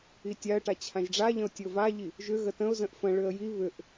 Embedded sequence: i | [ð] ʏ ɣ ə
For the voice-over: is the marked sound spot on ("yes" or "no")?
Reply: no